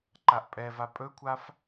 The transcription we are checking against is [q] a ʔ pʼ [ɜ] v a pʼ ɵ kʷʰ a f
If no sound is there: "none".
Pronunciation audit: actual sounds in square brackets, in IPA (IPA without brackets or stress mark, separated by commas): ǃ, ɛ